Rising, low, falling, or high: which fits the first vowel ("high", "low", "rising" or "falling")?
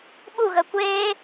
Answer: falling